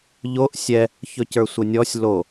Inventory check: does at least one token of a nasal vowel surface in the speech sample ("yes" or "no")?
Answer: no